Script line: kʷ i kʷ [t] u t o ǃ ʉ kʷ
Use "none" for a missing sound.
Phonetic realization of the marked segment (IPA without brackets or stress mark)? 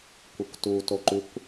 t